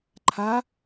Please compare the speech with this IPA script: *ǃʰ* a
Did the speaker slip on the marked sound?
no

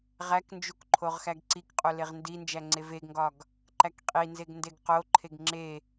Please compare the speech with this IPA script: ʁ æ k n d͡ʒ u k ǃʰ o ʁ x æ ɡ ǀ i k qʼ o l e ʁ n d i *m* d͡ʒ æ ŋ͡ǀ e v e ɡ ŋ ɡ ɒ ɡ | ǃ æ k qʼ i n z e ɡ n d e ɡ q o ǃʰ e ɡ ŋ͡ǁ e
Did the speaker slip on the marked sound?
yes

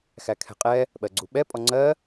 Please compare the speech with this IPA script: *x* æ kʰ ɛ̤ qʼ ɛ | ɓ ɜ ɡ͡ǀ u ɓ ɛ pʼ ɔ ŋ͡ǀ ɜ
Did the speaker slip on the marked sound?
no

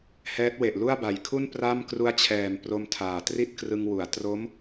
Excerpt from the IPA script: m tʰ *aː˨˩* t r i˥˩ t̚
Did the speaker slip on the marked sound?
no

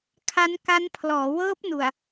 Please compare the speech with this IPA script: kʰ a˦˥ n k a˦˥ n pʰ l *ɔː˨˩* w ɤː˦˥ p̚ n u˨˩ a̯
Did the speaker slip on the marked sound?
yes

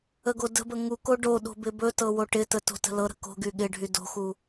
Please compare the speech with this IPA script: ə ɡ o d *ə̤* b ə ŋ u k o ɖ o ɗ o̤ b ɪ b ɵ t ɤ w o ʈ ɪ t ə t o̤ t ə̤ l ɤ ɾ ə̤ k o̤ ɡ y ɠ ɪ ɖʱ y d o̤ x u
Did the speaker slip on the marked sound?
no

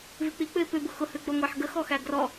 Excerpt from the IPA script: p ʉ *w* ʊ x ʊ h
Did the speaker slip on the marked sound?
yes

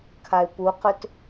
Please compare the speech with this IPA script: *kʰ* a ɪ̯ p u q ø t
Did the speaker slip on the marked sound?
no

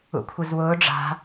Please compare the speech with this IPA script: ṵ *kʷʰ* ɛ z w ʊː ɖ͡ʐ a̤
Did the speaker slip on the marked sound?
no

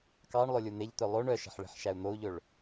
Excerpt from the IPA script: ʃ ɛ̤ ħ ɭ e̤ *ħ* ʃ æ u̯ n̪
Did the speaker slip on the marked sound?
no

